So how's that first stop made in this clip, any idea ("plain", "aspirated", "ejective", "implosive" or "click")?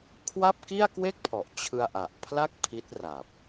aspirated